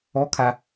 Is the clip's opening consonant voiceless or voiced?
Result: voiceless